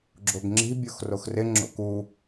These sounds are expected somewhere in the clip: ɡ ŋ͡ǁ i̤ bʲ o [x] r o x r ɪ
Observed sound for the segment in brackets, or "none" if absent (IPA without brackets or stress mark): x